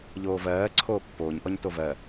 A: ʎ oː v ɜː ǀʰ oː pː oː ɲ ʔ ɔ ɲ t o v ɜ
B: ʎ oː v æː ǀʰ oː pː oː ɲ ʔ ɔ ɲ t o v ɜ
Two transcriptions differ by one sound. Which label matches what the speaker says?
A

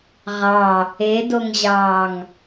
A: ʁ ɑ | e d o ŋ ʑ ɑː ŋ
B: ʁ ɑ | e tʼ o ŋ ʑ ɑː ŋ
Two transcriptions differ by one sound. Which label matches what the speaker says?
A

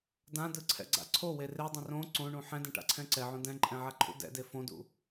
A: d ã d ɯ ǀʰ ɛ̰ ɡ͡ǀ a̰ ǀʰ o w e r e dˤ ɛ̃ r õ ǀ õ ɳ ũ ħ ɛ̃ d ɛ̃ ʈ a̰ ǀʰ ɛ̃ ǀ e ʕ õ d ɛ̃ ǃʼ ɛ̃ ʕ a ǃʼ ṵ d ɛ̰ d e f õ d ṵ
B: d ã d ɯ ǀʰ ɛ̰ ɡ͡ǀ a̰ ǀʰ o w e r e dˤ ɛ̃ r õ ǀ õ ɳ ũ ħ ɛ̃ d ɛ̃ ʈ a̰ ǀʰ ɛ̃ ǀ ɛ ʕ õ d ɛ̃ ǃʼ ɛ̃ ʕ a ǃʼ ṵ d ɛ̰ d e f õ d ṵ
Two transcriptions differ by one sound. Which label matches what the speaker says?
B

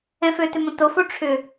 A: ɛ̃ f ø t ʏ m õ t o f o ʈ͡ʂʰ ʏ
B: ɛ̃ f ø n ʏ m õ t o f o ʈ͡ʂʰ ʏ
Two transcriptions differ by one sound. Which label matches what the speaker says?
A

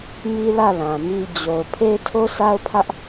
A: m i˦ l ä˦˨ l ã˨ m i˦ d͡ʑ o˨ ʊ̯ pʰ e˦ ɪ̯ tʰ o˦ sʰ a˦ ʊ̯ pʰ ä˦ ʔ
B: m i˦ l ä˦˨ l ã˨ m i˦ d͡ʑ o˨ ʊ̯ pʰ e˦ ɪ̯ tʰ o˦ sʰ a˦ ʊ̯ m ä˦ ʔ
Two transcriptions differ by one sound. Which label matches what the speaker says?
A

